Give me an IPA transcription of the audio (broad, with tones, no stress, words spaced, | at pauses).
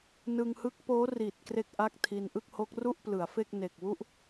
nɯ˧ŋhɯ˦˥k̚poː˦˥ ri˨˩t̚ kre˥˩k̚ʔa˥˩k̚tʰi˧n ʔɯ˥˩k̚ho˦˥k̚ ru˥˩ʔplɯ˩˦a̯fe˥˩k̚ne˨˩k̚ wu˥˩ʔ